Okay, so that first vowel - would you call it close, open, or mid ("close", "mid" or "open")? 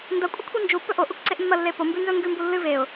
open